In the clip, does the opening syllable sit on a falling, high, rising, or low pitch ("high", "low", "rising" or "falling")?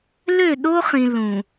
falling